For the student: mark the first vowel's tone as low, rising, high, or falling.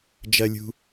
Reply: high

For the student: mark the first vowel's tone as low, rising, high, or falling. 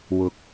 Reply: rising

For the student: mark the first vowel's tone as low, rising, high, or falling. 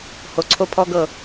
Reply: low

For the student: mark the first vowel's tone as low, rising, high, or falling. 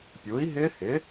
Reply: rising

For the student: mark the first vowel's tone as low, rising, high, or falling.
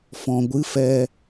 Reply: low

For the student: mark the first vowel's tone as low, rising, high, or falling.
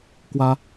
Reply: high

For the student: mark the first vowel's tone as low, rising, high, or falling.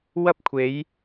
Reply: high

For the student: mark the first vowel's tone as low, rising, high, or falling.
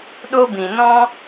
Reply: high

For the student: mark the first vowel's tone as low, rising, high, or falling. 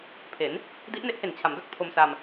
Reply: rising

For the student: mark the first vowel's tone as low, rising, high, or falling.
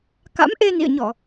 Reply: rising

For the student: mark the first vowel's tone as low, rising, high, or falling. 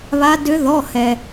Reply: rising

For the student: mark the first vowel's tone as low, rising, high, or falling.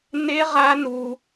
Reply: high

